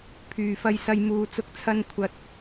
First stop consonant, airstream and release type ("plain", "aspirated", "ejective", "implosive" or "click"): aspirated